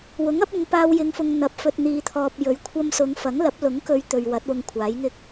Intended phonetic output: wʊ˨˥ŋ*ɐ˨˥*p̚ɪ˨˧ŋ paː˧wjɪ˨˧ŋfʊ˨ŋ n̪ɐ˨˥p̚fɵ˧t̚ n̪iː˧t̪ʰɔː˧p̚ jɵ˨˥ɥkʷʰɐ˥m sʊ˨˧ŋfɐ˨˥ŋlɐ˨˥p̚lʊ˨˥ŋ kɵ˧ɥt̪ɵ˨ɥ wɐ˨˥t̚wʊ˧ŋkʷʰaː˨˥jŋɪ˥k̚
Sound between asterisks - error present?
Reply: no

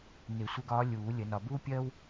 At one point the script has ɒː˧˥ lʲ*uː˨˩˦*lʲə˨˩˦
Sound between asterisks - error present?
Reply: no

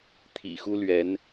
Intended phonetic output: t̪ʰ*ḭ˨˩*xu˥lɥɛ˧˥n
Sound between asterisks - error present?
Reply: no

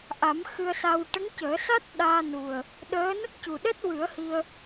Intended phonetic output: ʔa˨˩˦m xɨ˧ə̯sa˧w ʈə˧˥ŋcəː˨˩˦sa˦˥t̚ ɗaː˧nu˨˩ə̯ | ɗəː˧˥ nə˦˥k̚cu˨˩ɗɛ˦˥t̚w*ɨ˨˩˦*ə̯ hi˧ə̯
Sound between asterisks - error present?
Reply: no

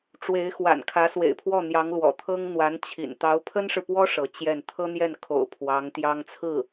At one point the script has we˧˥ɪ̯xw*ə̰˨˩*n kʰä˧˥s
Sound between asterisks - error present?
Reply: yes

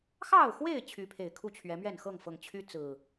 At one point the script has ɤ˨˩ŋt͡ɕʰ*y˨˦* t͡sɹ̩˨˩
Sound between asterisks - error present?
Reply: yes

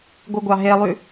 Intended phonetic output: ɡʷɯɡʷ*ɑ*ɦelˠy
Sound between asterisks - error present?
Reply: no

